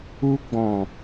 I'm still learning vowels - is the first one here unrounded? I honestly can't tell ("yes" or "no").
no